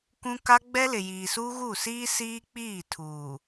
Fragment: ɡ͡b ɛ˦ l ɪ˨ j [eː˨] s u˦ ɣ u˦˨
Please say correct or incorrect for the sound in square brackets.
incorrect: iː˨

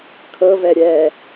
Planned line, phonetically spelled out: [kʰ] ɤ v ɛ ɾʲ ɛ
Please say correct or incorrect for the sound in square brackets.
correct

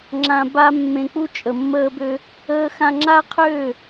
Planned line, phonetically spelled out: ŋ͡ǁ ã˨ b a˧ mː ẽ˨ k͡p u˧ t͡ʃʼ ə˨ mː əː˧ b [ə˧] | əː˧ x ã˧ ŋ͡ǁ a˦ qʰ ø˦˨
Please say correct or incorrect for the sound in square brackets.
incorrect: ø˧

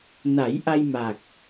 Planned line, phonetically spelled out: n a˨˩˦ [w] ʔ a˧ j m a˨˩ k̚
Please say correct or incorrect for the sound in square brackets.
incorrect: j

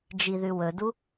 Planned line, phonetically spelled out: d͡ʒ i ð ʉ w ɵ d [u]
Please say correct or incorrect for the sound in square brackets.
correct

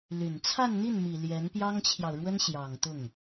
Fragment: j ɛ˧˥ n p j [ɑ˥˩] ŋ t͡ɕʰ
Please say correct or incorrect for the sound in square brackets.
incorrect: ɑ˥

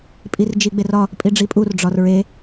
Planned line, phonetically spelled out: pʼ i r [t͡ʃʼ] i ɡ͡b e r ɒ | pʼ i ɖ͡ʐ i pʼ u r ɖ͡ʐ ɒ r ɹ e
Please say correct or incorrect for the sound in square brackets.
incorrect: d͡ʒ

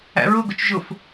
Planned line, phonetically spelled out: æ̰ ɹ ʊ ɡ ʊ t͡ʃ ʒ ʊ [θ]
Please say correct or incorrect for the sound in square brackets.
incorrect: f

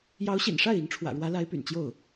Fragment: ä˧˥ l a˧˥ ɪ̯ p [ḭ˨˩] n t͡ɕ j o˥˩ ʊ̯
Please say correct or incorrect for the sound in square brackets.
incorrect: y̰˨˩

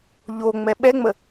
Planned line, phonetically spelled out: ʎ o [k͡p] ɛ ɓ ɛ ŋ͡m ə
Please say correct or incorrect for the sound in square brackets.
incorrect: ŋ͡m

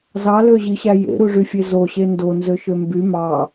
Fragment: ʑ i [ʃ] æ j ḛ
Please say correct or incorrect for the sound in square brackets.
incorrect: ɕ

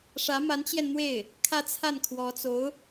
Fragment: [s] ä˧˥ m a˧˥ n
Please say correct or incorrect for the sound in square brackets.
incorrect: ʂ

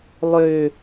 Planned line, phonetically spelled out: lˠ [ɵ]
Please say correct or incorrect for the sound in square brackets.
incorrect: ø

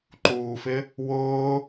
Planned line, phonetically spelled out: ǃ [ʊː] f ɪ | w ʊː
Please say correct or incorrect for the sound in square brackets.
incorrect: uː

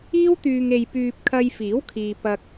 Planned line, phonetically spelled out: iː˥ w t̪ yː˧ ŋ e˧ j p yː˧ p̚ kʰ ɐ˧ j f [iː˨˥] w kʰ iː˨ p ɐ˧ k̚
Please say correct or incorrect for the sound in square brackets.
correct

